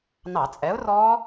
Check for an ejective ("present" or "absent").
present